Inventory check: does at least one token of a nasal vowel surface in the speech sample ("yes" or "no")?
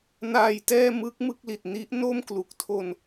no